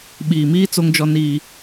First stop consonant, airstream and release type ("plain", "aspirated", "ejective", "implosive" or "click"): implosive